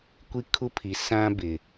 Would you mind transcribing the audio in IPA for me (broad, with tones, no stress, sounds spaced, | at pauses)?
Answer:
kʷ i˦ kʰ u˦ pʰ i˨ s ã˦ b ɪ˨